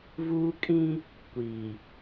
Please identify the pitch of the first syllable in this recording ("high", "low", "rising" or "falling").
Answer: high